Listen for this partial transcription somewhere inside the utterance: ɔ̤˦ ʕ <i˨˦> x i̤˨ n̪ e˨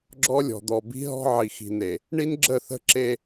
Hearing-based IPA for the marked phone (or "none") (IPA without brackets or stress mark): i˨